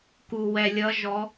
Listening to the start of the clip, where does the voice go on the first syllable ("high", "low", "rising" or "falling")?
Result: low